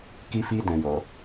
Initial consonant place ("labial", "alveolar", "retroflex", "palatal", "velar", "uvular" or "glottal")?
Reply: velar